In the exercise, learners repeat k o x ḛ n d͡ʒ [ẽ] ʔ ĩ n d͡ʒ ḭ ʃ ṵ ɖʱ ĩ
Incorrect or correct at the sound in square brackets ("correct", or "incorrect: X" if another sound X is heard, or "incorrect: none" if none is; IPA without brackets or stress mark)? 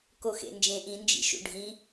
correct